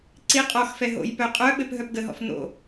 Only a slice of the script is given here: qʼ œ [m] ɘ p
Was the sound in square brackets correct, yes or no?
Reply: no